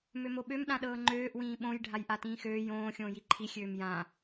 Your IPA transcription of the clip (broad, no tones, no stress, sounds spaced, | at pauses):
m ø m o ɓ ø m ɗ ã ɗ ɤː ŋ͡ǃ øː ʔ w ĩː ɓ õ j ɖʱ a j ʔ a t ĩː x øː j õː xʲ õː j i ǃʰ i xʲ øː m j ã